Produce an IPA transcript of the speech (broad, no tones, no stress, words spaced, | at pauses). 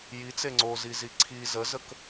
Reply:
jit͡se ŋ͡ǀozizi ǀʰi zəzək